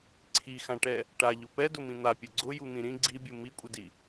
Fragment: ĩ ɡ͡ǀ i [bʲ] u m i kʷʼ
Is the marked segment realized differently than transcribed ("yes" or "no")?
no